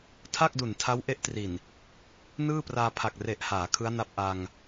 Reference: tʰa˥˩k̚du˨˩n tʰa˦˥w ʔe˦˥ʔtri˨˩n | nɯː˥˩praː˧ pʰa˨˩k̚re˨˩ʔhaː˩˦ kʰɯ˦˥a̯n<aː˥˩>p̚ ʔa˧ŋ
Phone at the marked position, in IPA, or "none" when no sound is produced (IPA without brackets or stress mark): a˥˩